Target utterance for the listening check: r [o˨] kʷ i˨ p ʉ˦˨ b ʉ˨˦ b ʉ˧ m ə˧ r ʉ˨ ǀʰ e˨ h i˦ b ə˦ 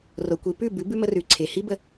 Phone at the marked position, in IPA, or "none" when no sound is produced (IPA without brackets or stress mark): o˨